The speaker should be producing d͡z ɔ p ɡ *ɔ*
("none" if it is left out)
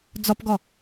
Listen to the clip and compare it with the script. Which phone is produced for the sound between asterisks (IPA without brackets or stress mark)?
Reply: ɔ